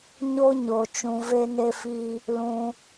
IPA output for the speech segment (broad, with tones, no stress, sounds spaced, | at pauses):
ɲ o˧ ɲ o˨ t͡ʃ ũ˧ v e˦ n e˦ f i˦ | l ũ˧